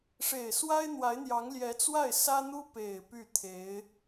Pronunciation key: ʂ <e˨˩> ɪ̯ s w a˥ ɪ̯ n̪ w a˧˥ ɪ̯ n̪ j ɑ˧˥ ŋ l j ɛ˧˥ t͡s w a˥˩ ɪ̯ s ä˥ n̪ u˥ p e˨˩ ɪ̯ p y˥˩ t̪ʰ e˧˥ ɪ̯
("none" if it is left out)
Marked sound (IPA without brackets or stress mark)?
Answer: e˨˩